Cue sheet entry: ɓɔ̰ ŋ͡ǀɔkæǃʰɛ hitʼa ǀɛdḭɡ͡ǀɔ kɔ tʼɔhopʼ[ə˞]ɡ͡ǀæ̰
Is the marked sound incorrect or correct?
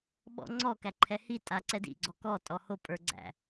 correct